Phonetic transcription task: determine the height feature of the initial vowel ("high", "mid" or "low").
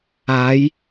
low